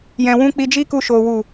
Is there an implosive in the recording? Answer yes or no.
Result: no